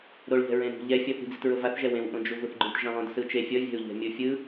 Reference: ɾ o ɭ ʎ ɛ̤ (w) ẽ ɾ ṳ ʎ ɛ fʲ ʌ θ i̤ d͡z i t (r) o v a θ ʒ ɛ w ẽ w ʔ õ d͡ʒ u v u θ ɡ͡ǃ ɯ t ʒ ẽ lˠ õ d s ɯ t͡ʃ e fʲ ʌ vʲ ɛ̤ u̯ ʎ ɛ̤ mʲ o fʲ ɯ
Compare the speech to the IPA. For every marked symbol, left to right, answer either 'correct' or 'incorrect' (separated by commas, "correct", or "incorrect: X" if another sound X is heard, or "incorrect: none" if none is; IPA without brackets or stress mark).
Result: incorrect: ɹ, incorrect: ɹ